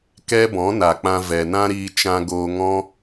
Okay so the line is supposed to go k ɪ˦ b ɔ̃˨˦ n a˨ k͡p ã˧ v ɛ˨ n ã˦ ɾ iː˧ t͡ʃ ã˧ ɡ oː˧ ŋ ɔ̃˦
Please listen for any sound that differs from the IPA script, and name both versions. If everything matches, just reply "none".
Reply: ɪ˦ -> ɛ˦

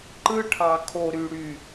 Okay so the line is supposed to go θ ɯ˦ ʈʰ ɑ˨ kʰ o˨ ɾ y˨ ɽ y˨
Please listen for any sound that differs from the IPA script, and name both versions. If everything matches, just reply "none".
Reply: θ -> ǃ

